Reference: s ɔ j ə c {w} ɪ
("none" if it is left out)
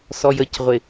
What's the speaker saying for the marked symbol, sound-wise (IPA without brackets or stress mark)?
ʁʷ